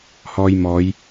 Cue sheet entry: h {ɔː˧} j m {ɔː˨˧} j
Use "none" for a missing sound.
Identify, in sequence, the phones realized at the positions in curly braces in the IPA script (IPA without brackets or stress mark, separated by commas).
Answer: ɔː˧, ɔː˨˧